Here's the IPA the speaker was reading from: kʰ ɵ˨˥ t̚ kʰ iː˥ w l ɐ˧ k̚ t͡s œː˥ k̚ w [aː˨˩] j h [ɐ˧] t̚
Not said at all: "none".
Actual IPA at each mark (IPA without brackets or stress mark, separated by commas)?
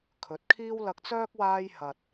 aː˥, ɐ˧